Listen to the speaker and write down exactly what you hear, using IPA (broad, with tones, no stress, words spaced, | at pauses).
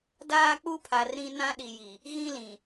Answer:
daː˦k͡pu˦pʰa˨r ɾĩ˦ nã˦ɗi˨ji˨ | ɣĩ˦lĩ˨